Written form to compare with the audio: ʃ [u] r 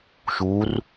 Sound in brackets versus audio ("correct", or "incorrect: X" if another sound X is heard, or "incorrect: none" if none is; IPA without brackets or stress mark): correct